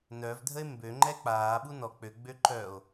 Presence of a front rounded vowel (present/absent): present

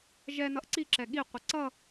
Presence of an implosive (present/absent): present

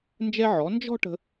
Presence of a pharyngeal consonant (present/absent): present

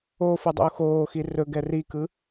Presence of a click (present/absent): absent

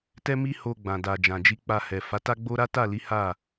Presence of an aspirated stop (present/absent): absent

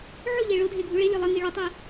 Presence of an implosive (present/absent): absent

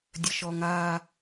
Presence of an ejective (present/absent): absent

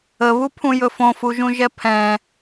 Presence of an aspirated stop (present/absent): present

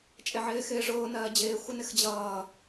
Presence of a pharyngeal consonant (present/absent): present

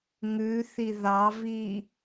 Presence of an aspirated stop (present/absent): absent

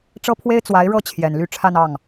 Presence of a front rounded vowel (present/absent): present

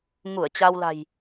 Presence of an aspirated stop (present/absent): absent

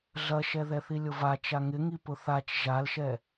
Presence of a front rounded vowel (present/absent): absent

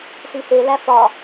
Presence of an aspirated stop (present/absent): absent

